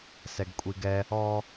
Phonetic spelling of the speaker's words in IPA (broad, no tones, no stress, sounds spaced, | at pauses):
s ɛ ɡ kʷʼ i ɡ ɛ | ɔ